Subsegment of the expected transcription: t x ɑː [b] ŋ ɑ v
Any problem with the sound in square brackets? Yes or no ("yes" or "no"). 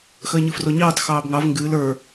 no